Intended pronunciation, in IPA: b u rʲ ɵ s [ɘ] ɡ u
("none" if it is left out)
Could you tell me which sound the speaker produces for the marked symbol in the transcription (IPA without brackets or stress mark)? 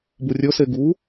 e